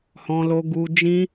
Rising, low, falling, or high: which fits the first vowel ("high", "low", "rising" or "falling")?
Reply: high